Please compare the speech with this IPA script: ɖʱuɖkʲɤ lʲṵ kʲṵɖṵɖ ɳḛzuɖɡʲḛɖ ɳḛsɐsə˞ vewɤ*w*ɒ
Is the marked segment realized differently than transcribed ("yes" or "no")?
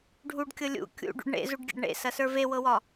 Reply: no